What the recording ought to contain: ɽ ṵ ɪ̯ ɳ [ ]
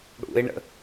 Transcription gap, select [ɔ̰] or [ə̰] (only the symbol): ə̰